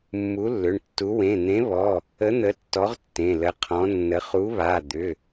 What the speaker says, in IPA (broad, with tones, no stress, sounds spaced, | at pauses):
mː u˨˥ lː ʏ˩˧˩ ɳ tː u˨˥ w ẽ˩˧˩ n̪ ẽ˨˥ β ɔ˩˧˩ | ə˨˥ n̪ ə˨˥ tː ɔ˨˥ ʁ tː ẽ˩˧˩ l ə˨˥ qʰ ɔ̃˨˥ nː ə˨˥ χ u˨˥ β a˩˧˩ d̪ ʏ˩˧˩